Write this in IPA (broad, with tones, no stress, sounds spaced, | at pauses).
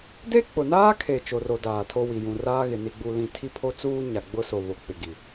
d e˦ k͡p ʊ˨ n aː˦ kʰ e˨ t͡ʃ o˨ r o˨ d aː˨ tʰ o˦ w i˨ j ũ˨ r aː˦ ɣ ɪ˨ n i˨ ɡ͡b u˨ l ĩ˨ tʰ i˦ pʰ o˦ t͡s uː˦ ɲ a˨ ɡ͡b ʊ˦ s o˨ β o˨ k͡p ɪ˨ ɡ i˨